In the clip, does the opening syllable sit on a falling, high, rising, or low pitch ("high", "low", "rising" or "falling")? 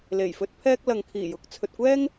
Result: low